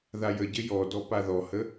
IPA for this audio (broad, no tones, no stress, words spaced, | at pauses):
ðajəɟɘ jɔdɔ paðɔhə